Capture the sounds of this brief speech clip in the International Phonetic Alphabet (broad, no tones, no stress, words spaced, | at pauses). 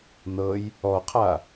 nɤj | ɔqʰa